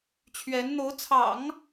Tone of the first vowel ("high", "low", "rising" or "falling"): rising